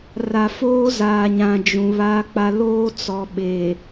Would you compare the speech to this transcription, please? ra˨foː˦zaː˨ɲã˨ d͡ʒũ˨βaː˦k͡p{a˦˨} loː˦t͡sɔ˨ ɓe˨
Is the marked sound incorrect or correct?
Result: incorrect